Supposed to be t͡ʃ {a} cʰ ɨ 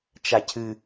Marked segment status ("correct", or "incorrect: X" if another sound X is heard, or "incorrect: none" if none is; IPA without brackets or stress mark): correct